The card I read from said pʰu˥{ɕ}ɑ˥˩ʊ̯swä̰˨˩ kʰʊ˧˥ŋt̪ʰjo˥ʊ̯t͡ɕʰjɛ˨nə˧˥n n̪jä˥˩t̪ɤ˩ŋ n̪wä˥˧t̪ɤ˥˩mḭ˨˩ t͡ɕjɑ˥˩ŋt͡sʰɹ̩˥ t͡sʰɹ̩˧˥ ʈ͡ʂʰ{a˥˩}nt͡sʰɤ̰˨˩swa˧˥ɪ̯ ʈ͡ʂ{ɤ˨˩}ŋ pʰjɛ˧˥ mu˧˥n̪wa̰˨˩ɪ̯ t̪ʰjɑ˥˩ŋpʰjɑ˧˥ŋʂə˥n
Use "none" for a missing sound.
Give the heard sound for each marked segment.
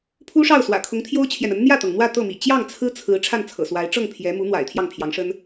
ʂ, a˥˩, ɤ˥˩

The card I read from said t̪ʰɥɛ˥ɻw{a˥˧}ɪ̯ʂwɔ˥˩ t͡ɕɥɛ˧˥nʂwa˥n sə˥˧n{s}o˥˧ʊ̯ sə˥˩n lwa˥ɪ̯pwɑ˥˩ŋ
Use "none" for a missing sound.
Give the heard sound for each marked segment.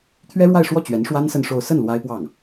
a˥˧, ʂ

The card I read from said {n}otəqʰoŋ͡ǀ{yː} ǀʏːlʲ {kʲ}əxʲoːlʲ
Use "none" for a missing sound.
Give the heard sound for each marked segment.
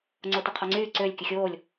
ŋ͡ǀ, yː, kʲ

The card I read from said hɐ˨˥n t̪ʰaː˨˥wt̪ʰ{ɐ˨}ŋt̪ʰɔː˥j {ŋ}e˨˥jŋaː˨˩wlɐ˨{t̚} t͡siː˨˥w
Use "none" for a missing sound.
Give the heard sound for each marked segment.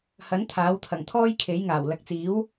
ɐ˨˩, kʰ, k̚

